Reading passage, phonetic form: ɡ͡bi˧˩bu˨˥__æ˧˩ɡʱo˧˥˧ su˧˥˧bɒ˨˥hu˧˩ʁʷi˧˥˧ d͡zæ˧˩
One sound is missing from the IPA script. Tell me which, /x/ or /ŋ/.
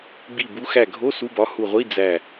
x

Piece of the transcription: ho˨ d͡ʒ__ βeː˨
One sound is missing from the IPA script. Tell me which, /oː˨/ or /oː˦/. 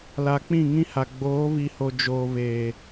oː˨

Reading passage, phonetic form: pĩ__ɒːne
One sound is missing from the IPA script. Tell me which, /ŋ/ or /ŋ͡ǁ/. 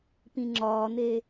ŋ͡ǁ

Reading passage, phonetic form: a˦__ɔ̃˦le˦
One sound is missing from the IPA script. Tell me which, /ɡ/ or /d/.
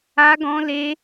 ɡ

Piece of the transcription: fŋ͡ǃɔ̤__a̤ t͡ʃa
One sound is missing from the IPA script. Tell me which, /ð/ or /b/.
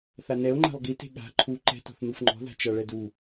ð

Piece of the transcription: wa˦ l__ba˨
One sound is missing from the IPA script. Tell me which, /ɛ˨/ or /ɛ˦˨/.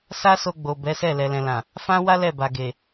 ɛ˦˨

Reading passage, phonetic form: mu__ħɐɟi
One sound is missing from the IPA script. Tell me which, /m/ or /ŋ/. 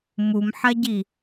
m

